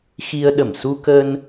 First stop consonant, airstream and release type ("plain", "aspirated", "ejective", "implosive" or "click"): implosive